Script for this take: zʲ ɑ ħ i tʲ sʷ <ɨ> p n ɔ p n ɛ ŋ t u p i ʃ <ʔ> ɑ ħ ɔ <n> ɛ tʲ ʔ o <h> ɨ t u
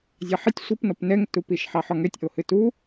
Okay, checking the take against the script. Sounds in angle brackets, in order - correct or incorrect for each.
correct, incorrect: ħ, incorrect: ŋ, correct

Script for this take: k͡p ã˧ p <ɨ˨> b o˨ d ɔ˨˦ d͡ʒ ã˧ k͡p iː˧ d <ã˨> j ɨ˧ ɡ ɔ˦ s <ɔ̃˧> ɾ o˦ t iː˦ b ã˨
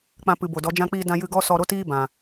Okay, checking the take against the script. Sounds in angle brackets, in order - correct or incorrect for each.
correct, incorrect: ã˧, incorrect: ɔ˧

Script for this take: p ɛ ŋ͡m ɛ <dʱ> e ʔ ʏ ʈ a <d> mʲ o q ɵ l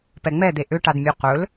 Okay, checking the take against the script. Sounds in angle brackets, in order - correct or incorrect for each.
incorrect: d̪, correct

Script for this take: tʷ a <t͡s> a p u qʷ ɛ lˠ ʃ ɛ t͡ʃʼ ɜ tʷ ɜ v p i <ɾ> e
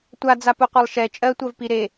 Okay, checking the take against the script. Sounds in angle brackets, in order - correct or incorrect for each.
incorrect: d͡z, correct

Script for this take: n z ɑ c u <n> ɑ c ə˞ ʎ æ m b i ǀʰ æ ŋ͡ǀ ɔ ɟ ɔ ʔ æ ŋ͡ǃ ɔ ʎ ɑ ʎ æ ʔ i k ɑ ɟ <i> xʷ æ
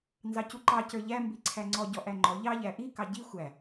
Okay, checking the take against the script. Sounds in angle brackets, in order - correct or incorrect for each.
incorrect: ǃ, correct

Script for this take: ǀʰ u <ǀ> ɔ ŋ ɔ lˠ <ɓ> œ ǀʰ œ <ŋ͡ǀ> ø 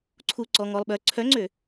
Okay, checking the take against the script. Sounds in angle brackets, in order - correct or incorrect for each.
correct, correct, correct

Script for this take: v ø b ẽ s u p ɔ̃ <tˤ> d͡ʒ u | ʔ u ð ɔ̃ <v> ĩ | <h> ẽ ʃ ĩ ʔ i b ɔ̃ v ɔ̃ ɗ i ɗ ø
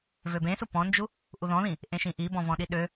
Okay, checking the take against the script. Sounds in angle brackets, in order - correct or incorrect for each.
incorrect: n, incorrect: ð, incorrect: ʔ

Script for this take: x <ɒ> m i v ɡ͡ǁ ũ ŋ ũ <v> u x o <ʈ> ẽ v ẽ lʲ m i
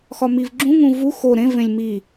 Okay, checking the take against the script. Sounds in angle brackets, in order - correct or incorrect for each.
correct, correct, incorrect: ɾ

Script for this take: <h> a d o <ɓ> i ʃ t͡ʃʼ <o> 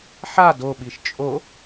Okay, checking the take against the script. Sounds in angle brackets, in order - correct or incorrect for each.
incorrect: ħ, correct, correct

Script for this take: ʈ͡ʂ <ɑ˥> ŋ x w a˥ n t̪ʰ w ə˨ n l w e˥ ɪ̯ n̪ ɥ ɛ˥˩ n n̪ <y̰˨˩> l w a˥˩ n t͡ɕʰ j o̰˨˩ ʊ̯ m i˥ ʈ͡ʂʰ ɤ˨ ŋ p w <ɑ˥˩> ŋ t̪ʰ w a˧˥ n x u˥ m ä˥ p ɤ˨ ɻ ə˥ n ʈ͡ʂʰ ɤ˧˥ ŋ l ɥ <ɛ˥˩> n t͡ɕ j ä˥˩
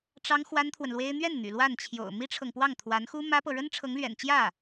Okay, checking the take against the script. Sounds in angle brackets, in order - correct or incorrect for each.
correct, correct, correct, incorrect: ɛ̰˨˩

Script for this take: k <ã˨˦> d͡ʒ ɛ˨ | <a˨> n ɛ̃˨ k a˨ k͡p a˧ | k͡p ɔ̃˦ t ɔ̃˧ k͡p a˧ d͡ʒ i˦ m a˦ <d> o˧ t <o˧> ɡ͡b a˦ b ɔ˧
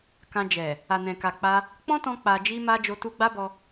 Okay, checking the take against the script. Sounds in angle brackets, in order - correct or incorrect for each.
incorrect: ã˧, correct, incorrect: d͡ʒ, incorrect: u˧

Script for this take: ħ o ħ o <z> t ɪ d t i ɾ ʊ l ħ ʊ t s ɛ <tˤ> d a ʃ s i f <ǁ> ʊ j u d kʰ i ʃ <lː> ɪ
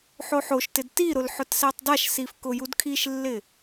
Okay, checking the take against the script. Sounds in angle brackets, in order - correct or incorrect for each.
incorrect: ʃ, correct, incorrect: k, correct

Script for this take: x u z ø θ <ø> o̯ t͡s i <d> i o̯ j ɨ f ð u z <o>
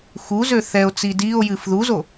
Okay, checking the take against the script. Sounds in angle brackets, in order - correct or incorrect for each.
incorrect: ɛ, correct, correct

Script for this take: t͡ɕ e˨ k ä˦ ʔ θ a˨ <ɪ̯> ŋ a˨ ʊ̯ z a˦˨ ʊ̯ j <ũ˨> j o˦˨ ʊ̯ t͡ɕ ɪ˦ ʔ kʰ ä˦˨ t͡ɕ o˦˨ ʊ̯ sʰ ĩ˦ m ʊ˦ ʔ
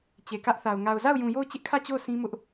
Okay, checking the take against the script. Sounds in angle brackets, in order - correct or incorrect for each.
incorrect: ʊ̯, correct

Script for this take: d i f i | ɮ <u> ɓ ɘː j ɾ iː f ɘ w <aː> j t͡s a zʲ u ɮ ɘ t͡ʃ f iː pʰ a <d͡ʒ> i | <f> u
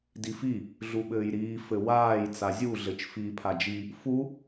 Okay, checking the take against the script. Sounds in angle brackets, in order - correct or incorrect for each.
correct, correct, correct, correct

